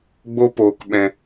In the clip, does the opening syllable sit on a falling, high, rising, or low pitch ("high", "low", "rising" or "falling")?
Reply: high